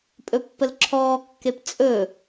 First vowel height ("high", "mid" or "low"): mid